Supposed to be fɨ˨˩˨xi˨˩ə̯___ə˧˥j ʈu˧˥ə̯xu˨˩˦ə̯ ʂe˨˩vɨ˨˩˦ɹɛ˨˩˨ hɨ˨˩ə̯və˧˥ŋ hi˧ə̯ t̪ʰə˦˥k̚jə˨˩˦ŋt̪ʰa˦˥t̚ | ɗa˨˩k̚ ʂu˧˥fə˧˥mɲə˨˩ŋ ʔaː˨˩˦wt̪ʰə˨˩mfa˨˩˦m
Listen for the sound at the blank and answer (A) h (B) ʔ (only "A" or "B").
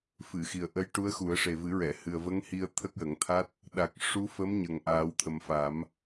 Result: B